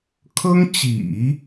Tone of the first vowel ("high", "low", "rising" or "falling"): high